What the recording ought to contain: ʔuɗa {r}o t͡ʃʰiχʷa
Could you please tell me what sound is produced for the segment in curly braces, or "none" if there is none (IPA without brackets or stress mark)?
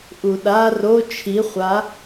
r